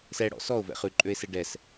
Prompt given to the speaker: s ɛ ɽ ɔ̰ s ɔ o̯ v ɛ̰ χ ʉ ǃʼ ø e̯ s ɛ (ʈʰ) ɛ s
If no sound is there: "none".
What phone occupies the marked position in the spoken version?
ɖ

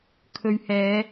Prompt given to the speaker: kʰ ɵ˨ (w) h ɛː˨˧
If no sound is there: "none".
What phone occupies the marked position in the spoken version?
ɥ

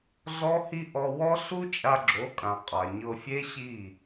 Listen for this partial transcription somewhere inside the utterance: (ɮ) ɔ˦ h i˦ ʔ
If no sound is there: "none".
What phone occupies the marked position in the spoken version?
ɮ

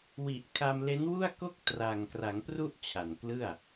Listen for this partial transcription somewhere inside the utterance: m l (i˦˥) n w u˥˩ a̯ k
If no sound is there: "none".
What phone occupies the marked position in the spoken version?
e˦˥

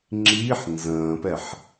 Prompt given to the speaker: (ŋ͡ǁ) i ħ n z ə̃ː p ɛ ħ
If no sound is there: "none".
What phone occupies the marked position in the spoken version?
ŋ͡ǁ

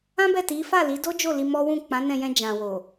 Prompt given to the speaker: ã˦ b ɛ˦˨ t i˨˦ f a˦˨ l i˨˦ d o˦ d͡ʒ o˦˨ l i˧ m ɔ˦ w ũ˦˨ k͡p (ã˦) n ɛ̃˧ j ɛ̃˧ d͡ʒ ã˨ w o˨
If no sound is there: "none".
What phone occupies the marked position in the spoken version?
ã˨˦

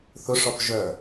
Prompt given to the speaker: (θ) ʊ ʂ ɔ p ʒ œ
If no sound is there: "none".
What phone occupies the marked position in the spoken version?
θ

